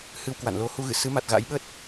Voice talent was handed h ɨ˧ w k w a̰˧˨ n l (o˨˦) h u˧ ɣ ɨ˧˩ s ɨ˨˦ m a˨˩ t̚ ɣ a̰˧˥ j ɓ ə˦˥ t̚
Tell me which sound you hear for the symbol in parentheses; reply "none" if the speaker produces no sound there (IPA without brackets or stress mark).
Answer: o˨˦